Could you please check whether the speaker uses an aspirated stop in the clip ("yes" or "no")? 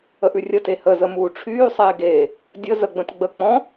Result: yes